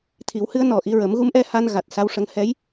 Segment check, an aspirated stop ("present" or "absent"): present